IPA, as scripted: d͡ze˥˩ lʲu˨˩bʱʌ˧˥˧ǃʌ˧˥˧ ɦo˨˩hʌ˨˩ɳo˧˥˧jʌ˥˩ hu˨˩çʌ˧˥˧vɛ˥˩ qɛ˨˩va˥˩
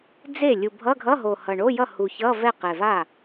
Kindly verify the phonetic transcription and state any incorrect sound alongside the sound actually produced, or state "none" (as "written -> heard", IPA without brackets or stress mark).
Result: ǃ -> ɡʱ